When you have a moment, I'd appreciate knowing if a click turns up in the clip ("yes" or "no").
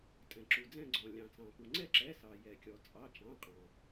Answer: yes